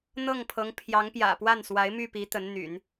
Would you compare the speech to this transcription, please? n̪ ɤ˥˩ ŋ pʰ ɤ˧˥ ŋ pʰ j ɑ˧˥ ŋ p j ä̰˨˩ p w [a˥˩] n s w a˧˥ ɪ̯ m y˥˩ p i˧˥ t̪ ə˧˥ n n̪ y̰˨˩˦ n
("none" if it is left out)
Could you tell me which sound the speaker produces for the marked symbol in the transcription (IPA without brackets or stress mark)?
a˥˩